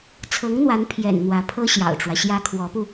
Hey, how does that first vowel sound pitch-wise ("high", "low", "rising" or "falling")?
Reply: rising